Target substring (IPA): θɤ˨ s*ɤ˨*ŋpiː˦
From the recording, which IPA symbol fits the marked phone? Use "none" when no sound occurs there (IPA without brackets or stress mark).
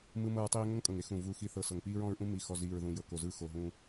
ɤ˨